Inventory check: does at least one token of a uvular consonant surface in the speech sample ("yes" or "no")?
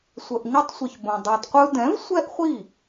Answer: yes